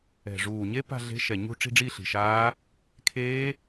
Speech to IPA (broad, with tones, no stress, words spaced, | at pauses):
ɛ̤˨˩ ʐuː˨˩ɲe˦˥ pa̤˥˧ɮe̤˦˥ʃɛ˨˩ ɲṳ˥˧ ʈ͡ʂi̤˥˧ɖ͡ʐi˥˧ɬi̤˨˩ʃaː˦˥ | kʰeː˦˥